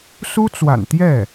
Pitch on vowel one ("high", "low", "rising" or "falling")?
high